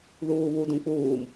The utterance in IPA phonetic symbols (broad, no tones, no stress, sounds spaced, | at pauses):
ð uː β u d ũ k͡p uː m